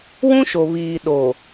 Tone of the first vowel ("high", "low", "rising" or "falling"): high